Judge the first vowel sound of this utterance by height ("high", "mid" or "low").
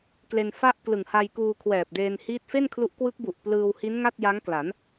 mid